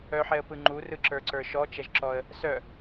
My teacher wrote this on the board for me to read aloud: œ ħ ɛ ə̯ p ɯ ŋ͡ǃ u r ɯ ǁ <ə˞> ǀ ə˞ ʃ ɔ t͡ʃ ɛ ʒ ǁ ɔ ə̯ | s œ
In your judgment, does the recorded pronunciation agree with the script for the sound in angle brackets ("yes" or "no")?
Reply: yes